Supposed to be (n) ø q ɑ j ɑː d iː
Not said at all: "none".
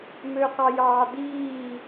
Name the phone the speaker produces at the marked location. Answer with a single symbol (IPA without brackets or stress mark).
m